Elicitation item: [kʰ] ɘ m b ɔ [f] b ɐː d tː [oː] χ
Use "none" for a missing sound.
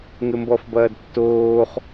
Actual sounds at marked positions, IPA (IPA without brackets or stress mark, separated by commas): ŋ, f, oː